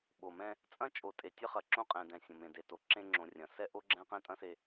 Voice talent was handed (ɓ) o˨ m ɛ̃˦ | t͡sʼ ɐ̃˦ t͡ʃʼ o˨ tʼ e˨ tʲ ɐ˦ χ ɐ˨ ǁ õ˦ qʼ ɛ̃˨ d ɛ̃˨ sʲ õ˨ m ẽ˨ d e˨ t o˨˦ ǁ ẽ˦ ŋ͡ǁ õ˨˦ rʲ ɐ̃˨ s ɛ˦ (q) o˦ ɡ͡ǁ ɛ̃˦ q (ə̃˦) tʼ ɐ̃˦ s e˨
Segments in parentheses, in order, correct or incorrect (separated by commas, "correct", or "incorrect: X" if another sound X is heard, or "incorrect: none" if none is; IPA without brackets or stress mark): correct, incorrect: ʔ, incorrect: ɛ̃˦